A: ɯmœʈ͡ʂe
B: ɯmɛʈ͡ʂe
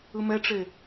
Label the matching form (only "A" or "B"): B